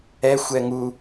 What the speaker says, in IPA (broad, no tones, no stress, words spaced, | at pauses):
ɛxʷ ɛŋu